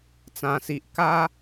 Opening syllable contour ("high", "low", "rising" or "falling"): low